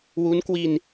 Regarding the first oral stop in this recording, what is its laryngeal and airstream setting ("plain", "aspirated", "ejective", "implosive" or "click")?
plain